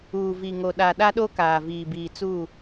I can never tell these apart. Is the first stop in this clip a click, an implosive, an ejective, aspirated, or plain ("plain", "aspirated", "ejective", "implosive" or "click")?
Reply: implosive